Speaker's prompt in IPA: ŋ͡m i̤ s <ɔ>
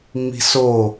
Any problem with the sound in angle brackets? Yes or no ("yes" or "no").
yes